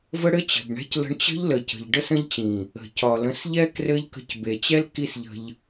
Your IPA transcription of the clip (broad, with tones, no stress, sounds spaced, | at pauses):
v ə˦ ɽ ɘ˦ t͡ɕ ə̤˨ b ɳ ɛ̤˦ c l ə̤˧ ɳ t͡ɕ ə̤˦ ʎ l ə˨ c ə̤˨ ʎ ɖ ə˧ s ə̃˧ ʎ t͡ɕ ĩ˨ | ə̤˨ c ɒ˨ l ə̃˨˦ s ʎ ɛ˧ k r ɘ˦ ʎ k ə̤˧ c b e˨ t͡ɕ ɛ˦ l k i˦ s ʎ ə̤˧ ʎ